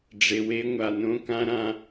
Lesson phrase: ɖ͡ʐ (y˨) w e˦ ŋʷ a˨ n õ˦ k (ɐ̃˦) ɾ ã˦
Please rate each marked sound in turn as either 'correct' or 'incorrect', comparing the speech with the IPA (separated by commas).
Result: incorrect, incorrect